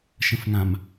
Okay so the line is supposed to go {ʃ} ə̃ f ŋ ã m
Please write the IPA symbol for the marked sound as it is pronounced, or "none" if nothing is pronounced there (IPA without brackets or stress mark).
ʃ